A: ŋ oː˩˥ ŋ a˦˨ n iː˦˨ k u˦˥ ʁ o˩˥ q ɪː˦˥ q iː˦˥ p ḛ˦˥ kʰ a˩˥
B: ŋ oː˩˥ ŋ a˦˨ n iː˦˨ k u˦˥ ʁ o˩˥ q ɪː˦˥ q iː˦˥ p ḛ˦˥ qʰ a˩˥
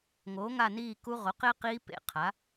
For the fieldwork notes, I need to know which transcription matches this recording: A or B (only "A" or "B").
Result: B